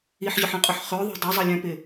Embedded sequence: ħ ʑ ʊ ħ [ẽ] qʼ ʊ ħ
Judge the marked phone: incorrect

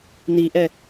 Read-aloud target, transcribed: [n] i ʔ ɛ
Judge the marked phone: correct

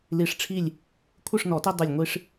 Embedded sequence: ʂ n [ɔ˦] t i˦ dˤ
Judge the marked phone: incorrect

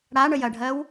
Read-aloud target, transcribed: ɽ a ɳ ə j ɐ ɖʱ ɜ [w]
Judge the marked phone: correct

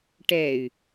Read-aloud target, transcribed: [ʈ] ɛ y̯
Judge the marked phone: correct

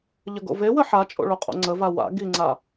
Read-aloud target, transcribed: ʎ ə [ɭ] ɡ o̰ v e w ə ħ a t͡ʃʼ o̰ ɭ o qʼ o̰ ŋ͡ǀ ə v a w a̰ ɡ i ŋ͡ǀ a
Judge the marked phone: incorrect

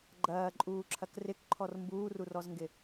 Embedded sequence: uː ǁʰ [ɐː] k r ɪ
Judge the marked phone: incorrect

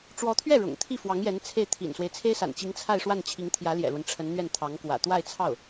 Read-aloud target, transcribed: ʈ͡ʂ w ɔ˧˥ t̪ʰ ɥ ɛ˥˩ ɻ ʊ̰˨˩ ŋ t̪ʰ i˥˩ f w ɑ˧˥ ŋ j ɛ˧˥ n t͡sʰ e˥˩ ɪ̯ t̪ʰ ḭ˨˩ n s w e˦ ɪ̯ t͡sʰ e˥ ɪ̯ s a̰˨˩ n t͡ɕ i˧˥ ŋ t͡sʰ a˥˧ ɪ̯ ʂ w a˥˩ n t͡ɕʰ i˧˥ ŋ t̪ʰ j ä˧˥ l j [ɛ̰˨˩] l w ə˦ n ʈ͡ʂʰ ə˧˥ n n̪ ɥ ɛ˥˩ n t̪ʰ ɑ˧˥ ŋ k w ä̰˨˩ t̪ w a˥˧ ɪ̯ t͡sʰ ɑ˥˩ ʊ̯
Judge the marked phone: correct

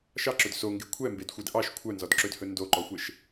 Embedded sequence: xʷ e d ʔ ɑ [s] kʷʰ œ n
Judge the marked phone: incorrect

